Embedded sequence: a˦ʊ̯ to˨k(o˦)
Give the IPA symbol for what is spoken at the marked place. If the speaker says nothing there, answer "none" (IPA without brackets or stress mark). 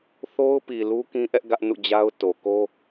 o˦